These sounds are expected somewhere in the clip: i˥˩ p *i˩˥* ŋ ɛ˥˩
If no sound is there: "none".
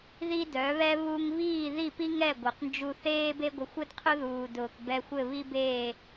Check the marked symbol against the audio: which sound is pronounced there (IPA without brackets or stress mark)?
i˥